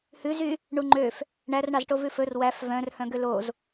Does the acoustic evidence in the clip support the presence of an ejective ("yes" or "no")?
no